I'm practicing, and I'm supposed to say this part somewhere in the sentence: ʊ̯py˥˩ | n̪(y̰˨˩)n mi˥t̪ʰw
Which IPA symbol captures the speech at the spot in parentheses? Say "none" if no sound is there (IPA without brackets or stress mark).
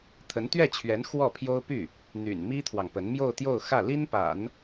y̰˨˩